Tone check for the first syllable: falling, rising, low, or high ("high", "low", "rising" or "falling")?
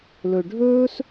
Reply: low